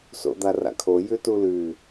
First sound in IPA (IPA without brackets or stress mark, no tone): s